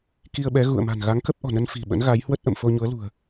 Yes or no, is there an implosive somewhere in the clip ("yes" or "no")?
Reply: yes